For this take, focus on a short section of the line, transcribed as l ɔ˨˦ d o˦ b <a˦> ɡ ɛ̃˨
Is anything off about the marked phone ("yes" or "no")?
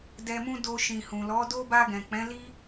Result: yes